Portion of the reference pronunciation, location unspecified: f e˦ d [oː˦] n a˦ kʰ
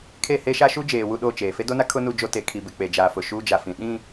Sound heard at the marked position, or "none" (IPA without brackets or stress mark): o˦